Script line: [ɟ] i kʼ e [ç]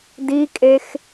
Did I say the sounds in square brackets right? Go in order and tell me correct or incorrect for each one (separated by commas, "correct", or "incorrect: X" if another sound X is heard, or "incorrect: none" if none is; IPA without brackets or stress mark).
incorrect: d, incorrect: x